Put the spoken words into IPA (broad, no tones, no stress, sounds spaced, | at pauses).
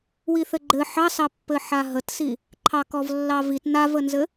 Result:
w i θ ɘ ɡ͡ǃ ɘ ħ ɑ s ɑ pː ɘ ħ a ɦ ə t s i | ǃʰ ɑ k ɔ v lː ɑ v i t n a v ə n z ɘ